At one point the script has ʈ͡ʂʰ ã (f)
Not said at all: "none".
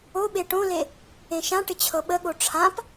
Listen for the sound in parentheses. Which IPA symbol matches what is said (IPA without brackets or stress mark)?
p